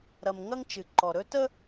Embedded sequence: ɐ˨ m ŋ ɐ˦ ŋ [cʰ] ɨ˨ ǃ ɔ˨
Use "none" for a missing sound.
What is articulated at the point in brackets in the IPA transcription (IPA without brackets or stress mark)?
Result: t͡ʃ